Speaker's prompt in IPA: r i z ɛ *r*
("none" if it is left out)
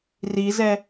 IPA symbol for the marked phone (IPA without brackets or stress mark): none